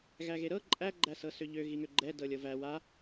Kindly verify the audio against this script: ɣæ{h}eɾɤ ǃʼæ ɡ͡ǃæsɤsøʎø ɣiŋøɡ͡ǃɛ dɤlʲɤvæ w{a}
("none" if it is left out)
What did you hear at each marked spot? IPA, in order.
ɣ, a

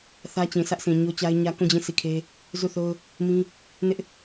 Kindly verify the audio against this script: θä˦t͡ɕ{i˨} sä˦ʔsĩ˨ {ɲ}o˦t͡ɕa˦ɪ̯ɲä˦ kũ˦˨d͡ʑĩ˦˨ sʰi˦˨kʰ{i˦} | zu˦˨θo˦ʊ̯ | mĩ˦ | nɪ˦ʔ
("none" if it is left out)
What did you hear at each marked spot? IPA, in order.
ĩ˨, ɲ, e˦

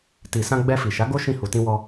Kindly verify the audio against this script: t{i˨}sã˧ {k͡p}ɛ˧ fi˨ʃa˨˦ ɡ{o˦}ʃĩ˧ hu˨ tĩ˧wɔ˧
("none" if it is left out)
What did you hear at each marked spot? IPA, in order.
i˨, ɡ͡b, o˦

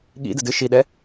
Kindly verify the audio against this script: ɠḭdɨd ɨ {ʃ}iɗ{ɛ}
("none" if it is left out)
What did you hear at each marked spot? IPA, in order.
ʃ, ɛ

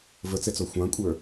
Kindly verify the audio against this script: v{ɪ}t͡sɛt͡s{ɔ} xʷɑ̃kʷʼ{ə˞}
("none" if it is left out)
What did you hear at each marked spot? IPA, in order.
ə, ɔ, ə˞

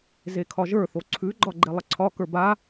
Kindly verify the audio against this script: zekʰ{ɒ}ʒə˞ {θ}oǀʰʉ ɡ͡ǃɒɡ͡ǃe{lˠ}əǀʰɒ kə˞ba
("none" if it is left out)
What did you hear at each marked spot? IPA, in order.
ɒ, θ, lˠ

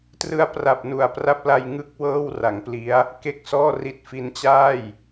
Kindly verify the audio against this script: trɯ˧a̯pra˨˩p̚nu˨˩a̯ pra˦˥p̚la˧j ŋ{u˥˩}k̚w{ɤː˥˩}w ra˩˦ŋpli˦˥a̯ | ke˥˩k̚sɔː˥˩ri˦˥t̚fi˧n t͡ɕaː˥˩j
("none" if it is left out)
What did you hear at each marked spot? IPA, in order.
ɯ˥˩, ɤː˥˩

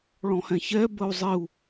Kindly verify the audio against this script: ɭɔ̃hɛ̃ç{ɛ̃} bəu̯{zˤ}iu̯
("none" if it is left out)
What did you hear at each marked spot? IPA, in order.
ɛ, zˤ

